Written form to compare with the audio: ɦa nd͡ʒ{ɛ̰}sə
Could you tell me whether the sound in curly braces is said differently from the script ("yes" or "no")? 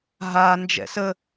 no